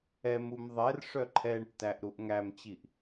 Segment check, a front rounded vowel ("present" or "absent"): present